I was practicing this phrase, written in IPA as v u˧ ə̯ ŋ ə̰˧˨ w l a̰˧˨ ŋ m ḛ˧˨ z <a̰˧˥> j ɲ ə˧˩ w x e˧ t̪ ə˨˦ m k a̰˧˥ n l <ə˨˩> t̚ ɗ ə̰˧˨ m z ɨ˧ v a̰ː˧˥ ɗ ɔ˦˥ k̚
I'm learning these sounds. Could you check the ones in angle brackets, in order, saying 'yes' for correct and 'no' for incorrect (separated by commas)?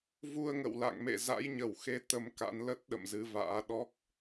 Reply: yes, no